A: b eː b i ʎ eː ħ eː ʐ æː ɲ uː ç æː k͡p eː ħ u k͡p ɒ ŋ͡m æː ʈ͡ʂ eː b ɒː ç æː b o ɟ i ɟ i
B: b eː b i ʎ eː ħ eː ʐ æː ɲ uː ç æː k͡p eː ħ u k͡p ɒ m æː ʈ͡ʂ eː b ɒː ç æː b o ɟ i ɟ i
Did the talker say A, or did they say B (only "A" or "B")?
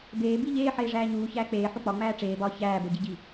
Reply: A